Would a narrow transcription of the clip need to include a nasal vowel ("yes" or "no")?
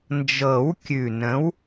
yes